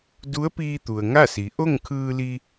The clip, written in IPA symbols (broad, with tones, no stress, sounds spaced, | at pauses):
d u˧˥ ə̯ p iː˧ t̪ u˩ ə̯ ŋ a˥˨ s i˩˧ ʔ o˥˨ ŋ kʰ ɯː˧ l i˧